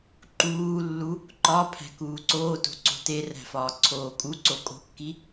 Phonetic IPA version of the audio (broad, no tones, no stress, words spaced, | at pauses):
ǃuːlːu | ǃɒ pʰæ̤kuːǀoːto̤ ǀo̤teræ̤ fɒːǀʰoːkʼuǀo kʼo̤kːi